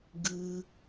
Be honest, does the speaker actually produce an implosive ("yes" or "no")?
no